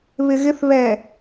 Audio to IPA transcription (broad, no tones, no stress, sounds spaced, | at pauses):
β ɪ ɣ ɪ θ β ɛ